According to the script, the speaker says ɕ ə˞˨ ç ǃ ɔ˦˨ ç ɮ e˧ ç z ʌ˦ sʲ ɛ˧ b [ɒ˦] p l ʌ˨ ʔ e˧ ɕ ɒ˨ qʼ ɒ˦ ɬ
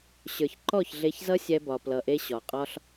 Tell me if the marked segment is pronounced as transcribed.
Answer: no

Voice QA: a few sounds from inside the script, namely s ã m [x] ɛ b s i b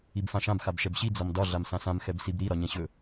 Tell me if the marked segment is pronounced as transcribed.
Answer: yes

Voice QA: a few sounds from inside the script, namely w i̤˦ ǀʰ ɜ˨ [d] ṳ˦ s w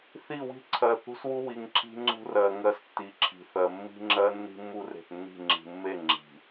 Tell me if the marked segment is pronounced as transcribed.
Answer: no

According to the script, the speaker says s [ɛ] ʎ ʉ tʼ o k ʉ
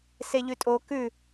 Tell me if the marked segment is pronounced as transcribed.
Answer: no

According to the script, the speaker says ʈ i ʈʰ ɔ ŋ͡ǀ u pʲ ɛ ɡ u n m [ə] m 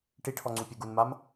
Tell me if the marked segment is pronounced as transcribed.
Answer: no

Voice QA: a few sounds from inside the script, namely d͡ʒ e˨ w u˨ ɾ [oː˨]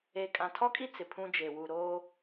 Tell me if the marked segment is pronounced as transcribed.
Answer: no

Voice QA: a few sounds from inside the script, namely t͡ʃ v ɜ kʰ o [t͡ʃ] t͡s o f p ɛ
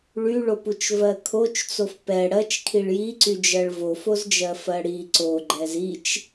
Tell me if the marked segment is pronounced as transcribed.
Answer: yes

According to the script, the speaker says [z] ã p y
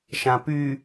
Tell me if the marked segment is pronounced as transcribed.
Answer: no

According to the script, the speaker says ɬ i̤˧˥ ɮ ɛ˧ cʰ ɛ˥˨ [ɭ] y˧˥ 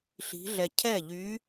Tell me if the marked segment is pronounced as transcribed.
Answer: no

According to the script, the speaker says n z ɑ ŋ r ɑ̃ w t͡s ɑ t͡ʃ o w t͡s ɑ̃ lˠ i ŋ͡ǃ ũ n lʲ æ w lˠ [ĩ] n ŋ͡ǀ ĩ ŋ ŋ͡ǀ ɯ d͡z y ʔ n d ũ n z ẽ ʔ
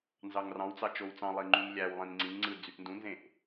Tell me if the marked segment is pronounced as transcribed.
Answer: yes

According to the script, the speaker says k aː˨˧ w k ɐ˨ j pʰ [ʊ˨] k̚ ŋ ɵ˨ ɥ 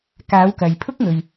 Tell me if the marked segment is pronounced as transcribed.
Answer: no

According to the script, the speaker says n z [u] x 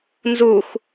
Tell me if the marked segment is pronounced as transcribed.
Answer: yes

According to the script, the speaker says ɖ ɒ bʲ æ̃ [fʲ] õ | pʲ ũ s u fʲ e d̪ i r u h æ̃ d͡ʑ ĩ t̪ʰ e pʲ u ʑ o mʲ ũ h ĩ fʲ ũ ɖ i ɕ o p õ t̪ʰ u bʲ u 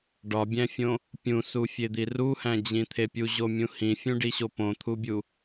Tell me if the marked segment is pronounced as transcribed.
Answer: yes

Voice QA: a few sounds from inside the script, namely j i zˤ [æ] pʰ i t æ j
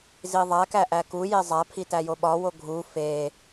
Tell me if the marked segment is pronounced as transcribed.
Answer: yes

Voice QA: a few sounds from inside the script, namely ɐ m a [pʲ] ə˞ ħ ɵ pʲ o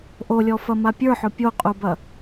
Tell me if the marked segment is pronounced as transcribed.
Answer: yes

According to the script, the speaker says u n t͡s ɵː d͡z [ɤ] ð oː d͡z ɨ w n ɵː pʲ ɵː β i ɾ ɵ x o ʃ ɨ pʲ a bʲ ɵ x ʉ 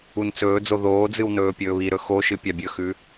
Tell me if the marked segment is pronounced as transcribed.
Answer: no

